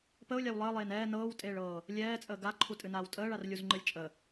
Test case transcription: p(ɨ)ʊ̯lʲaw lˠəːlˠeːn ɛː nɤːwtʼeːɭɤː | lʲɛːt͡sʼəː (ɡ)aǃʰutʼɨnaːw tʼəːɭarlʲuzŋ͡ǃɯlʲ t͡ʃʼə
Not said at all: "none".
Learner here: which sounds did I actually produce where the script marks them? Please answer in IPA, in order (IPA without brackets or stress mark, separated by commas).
ə, ɡ